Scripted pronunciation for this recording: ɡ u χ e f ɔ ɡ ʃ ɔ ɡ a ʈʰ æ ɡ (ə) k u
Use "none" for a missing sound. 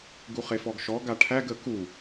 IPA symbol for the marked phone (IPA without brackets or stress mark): ə